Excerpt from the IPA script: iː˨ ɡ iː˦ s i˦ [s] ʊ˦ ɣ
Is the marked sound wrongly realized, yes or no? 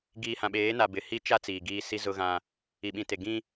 yes